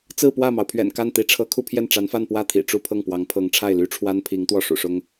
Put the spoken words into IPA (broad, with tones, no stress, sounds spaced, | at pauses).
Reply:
t͡s ɹ̩˥˧ p w ä˥˩ m ɑ˩ ʊ̯ pʰ ɥ ɛ̰˨˩ n k a˥˩ n t̪ i˧˥ ʈ͡ʂʰ ɤ˧˥ kʰ u˥˧ pʰ j ɛ˥˩ n ʈ͡ʂ a˧˥ n f a˥˧ n p w ä˥˩ t̪ʰ ḭ˨˩ ʈ͡ʂ u˥˧ pʰ ɤ˥˩ ŋ p w ɑ˧˥ ŋ pʰ ɤ˧˥ ŋ ʈ͡ʂʰ a˥˩ ɪ̯ l y˥ ʈ͡ʂʰ w a˥ n pʰ i˧˥ ŋ t̪ w ɔ˥˩ ʂ ṵ˨˩ ʂ ʊ˥ ŋ